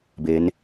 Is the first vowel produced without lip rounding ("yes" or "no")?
yes